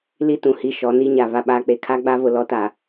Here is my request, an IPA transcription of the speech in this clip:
l i˦ t ũ˨ h i˦ ʃ ɔ˨˦ n i˦ ɲ a˨ v a˦ ɓ aː˦ k͡p e˦ kʰ a˦ ɡ͡b a˦ v ʊ˨ l ɔ˦ t a˨

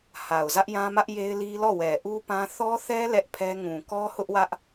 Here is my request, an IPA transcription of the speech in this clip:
h a˨ ʊ̯ z ä˦ ʔ j ã˦ m ä˦ ʔ j e˦ ɪ̯ l i˦ l ɔ˦˨ w ɛ˨ ʔ u˦ p ã˦ θ ɔ˦ θ ɛ˦ l ɛ˦ ʔ pʰ ɛ˦ ŋ ũ˨ k ɔ˦ h ʊ˦ ʔ w ä˦ ʔ

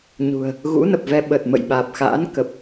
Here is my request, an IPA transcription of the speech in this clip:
ɲ ṳ˨˩ ə̯ | ɣ ṵ˧˥ n ə˨˩ p̚ v ɛ˧ ɓ ə˨˩ t̚ m ə̰˧˨ j ɓ aː˨˩ p̚ x a̰ː˧˥ n k ə˨˩ p̚

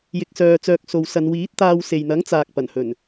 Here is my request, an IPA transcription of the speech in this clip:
j ɪ˨ k̚ s œː˨ t͡s œː˨ k̚ s o˨ w s ɐ˨˧ n w iː˨˥ t̚ t̪ aː˧ w s e˨ j n̪ ɐ˨˥ ŋ t͡s aː˨ k̚ p ɐ˨˩ n h ɵ˨˩ n

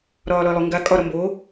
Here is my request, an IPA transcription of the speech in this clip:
ɾ ɒː l ɒ i̯ lˠ o ŋ ɡ a kʼ ɒ ɾ ɒ m b oː

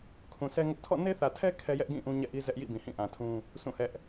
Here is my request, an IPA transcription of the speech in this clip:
kʰ ũ˨ s ɛ˦ ŋ ʊ˦ ʔ tʰ ɔ̰˦˨ n e˦ θ ä˨ tʰ ɛ˦ kʰ ɛ˦ j ɛ˦ ʔ ɡ ĩ˦˨ ʔ ũ˦ ɲ ɛ̰˦˨ ʔ i˦ z ɛ˦ ʔ j ḭ˦˨ b ĩ˨ h ĩ˦˨ ʔ ã˨ tʰ ũ˦ | sʰ ũ˦˨ h ɛ˦ ʔ

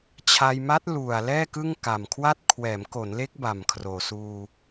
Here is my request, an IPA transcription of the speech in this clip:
t͡ɕʰ a˧ j m a˦˥ t̚ l u˨˩ a̯ l ɛː˥˩ k ɯ˥˩ ŋ k a˨˩ m kʰ w a˥˩ t̚ kʰ w ɛː˩˦ m k o˩˦ n l e˦˥ k̚ b a˨˩ m kʰ r oː˨˩ s uː˧

